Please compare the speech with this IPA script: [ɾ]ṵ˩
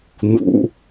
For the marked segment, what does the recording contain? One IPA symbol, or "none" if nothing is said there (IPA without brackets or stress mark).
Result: n